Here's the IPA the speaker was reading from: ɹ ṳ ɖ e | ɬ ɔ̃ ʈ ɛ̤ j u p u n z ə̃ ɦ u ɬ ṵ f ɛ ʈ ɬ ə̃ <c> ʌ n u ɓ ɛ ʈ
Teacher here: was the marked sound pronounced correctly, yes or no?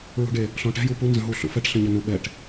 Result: no